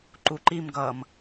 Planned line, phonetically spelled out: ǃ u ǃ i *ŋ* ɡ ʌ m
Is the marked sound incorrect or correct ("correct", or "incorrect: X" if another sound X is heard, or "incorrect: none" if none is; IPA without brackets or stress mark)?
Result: incorrect: m